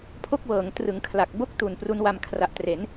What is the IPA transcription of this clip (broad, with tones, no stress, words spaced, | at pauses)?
pʰo˥˩k̚wɤː˩˦ŋ trɯ˩˦ŋ kʰla˨˩k̚ bo˥˩k̚tu˨˩n pru˦˥nwa˧m kʰra˨˩ʔtre˩˦n